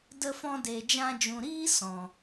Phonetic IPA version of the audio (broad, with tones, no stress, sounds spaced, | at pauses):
d ə˧ f ɔ̃˧ d eː˧ d͡ʒ ã˦ d͡ʒ ũ˧ ɾ iː˦ s ɔ̃˨